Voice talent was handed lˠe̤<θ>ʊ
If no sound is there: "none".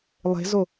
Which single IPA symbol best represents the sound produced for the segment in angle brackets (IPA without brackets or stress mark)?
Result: z